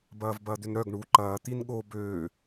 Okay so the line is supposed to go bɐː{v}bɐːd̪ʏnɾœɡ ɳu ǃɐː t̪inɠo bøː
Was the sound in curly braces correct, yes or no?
yes